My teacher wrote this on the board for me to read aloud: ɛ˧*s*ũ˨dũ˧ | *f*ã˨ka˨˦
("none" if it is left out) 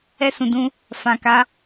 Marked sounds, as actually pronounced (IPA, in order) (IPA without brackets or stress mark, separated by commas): s, f